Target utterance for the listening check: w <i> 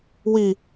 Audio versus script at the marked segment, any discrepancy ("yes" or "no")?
no